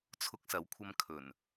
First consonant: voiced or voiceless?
voiceless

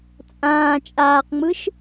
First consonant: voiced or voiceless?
voiceless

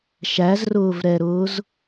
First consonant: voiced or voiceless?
voiceless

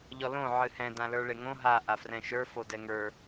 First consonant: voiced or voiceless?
voiced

